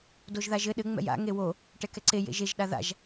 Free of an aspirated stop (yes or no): yes